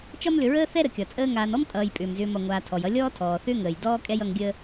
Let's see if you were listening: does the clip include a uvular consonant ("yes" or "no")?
no